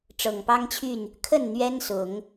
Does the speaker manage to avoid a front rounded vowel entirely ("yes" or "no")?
no